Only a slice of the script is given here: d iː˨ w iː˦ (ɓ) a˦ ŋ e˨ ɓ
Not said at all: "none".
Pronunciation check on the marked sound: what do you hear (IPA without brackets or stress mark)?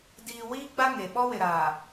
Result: ɡ͡b